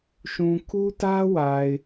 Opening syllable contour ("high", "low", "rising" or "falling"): low